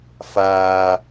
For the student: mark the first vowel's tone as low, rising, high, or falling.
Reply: high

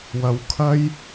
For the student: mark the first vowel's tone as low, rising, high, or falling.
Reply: low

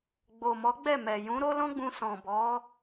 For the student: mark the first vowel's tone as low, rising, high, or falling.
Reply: low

